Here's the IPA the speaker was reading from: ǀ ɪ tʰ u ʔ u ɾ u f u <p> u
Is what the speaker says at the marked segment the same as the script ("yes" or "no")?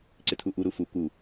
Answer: no